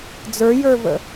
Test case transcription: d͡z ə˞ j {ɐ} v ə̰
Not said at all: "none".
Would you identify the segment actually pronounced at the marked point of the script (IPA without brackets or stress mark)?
ə˞